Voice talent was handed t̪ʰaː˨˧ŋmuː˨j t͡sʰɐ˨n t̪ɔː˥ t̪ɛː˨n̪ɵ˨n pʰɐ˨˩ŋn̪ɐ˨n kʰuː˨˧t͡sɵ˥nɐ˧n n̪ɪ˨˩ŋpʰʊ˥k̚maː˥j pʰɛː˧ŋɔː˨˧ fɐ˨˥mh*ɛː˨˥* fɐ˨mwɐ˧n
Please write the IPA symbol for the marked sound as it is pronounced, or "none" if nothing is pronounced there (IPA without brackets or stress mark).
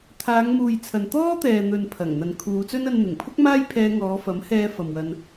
ɛː˧